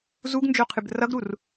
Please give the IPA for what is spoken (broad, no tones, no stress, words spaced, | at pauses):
zuɡnd͡ʒoqʰɨb rʌɡɾur